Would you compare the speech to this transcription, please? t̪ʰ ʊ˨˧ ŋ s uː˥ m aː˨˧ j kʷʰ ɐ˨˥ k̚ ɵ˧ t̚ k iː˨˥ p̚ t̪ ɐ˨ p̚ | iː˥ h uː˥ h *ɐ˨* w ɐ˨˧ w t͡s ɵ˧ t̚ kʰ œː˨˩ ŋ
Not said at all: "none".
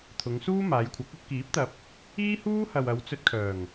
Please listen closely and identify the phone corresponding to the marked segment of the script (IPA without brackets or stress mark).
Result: ɐ˨